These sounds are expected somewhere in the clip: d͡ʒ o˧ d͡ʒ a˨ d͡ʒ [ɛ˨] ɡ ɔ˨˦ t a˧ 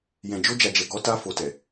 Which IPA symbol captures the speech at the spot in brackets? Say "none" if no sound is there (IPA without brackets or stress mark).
ɛ˨